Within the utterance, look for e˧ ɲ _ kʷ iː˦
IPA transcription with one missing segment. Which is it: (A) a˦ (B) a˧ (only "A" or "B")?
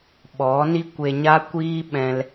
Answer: A